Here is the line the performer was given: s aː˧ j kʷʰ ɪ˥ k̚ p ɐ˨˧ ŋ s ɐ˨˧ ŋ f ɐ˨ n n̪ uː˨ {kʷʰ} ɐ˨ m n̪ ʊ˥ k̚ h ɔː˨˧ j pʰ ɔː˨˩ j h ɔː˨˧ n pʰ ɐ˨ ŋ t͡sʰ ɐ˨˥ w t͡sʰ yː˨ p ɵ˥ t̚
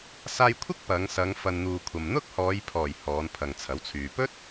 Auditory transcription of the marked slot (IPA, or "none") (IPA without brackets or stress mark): kʷʰ